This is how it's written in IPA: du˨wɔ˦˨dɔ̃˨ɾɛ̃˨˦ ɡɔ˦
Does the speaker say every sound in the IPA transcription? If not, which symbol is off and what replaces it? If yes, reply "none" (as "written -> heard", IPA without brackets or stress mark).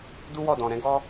u˨ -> u˦